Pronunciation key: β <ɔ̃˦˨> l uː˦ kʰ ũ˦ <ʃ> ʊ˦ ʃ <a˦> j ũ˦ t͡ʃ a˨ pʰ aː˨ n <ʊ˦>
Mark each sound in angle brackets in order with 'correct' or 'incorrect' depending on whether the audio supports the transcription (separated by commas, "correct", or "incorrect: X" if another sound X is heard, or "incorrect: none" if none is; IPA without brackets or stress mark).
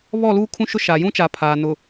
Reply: incorrect: ɔ˦˨, correct, incorrect: a˨, incorrect: ʊ˨